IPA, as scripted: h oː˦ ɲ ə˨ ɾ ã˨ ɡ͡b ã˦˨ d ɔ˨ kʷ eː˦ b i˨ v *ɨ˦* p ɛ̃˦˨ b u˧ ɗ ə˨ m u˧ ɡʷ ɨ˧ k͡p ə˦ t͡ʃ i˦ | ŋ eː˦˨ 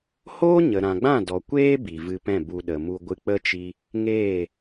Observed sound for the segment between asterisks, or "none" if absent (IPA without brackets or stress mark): ɨ˧